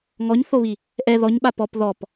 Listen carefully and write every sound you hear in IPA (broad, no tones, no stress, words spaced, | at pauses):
ŋɔɲθoβi | ʔɛ ðɔɲɓa pɔp ðɔp